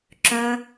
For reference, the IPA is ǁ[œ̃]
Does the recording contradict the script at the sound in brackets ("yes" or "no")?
no